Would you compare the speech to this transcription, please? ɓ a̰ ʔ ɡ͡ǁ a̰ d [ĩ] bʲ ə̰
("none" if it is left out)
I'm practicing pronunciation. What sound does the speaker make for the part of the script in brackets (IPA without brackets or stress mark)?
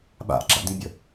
ĩ